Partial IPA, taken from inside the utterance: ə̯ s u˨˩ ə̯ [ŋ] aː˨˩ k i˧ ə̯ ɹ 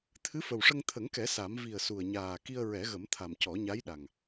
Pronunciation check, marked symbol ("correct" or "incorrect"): incorrect